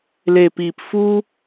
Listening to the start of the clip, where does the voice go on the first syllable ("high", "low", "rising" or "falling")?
low